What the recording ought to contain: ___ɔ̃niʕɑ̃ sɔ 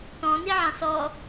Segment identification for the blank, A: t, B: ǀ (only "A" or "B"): A